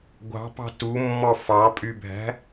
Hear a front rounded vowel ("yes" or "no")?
yes